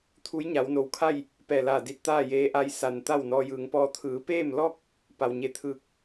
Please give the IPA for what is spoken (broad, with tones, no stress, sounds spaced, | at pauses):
t̪ʰ u˧˥ j ɲ a˩˧ w n o˩ w kʰ a˥˨ j | p ɛː˧˩ l aː˧˩ d i˧ t̚ t̪ aː˥˨ j eː˧˥ ʔ a˧ j s a˩ n t̪ a˥˨ w n ɔː˧ j ɯː˩˧ ŋ p ɔː˧˥ t̪ʰ ɯː˩˧ p eː˥˨ m l ɔː˥˨ k̚ | p a˩ w ɲ e˧ t̪ʰ ɯː˧˩ k̚